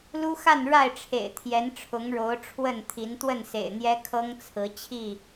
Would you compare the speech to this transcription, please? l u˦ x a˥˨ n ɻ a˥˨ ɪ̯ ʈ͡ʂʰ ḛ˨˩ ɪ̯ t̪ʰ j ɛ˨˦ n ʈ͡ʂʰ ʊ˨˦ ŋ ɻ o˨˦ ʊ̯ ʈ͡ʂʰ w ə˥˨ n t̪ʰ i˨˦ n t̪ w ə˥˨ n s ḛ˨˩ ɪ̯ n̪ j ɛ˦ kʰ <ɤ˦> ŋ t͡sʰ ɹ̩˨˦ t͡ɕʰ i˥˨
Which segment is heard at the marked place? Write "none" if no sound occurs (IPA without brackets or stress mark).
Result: ɤ˦